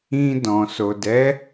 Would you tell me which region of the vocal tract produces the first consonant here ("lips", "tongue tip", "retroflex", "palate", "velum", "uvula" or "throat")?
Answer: tongue tip